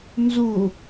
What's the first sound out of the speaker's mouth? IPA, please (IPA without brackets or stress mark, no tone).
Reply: n